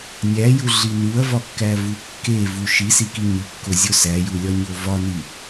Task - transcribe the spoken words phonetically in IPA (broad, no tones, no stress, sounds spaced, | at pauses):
nʲ æ j u ɮ i n u ɐ̯ v ɒ kː æ v u kː e v u ʃ i s i k i ɲ i kː o zʲ o s æ j u lʲ ɒ ɲ o v ɒ n i